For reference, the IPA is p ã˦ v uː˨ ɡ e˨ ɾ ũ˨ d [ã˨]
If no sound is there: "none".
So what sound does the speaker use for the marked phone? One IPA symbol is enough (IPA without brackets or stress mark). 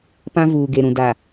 a˨